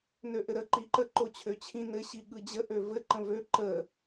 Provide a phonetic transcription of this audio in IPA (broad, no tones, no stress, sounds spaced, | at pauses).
n ø ʔ ɘ ɾ ə ǃ i ǃ ə ǃ o t͡ɕʰ ø t͡ɕʰ ĩ n ɘ ɕ i ɠ ɯ d͡ʑ ə ʔ ø v ɘ ǃ ə̃ v ø ǃ ə